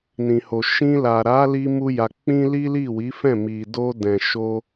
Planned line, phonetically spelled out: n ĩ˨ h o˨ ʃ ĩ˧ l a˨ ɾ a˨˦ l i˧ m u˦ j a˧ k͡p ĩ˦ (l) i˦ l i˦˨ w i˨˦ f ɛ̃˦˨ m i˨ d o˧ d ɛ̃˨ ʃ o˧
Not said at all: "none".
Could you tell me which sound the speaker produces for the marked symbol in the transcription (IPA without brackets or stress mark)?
l